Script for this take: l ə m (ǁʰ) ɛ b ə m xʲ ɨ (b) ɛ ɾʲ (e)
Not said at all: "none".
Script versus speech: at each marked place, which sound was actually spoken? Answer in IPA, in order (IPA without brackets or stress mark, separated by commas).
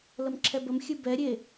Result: ǁʰ, b, e